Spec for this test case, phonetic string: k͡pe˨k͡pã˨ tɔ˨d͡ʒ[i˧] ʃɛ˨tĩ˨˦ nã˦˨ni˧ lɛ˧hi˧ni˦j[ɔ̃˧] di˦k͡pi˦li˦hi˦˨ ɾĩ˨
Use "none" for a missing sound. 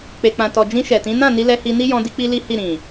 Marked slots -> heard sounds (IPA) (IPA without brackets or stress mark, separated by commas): ĩ˧, ɔ̃˧